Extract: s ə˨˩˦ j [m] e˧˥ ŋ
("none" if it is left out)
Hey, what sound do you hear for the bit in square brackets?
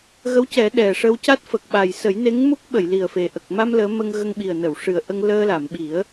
n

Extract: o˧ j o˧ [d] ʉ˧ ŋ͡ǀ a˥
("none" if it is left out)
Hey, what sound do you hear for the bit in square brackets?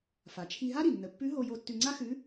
tː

